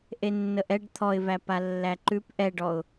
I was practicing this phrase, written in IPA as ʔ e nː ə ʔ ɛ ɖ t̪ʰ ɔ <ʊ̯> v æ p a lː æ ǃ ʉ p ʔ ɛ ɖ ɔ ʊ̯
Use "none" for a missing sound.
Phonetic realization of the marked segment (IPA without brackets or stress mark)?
ɪ̯